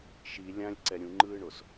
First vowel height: high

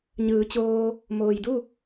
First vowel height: high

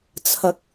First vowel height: low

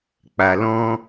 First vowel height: low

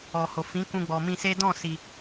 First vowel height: mid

